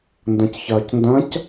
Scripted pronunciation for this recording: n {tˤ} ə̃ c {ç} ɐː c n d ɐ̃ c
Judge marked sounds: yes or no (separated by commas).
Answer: no, yes